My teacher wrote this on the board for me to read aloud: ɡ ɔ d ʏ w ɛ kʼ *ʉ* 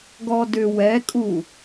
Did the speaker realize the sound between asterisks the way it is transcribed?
no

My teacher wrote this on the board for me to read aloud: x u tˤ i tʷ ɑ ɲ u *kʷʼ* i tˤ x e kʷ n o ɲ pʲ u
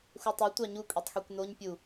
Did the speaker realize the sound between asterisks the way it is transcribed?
yes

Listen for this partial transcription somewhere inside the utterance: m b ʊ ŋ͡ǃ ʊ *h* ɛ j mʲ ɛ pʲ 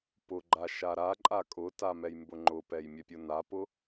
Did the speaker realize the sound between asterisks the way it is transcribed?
no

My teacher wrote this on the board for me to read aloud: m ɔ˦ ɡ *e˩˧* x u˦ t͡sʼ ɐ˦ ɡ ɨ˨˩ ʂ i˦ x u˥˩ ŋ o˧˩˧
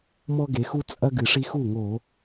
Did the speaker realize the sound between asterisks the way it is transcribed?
yes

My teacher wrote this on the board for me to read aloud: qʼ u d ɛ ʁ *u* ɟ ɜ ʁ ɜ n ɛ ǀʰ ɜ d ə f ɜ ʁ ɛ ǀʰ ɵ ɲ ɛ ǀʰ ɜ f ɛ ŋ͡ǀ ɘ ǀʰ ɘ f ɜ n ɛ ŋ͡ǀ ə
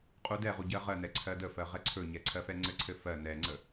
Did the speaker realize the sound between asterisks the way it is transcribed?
yes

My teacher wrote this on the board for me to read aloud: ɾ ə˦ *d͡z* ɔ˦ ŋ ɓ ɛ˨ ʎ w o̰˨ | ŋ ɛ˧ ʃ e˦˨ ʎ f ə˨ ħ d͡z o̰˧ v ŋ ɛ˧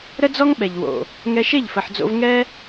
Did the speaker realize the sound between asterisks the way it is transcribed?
yes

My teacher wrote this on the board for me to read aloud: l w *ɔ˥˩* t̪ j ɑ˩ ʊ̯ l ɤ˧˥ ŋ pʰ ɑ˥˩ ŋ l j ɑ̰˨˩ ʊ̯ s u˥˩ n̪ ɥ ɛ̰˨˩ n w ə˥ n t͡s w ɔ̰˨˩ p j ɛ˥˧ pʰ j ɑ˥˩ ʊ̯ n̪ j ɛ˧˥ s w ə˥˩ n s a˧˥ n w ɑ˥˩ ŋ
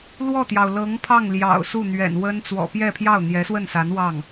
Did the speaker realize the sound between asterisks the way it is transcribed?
yes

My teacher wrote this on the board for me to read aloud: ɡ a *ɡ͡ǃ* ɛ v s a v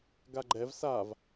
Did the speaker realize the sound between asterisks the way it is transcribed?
yes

